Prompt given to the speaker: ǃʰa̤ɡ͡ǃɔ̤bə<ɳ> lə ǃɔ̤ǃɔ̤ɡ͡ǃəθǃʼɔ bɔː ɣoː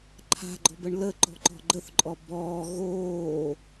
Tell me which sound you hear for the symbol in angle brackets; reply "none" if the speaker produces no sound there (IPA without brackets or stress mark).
ɳ